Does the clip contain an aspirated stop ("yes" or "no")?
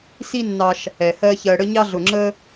no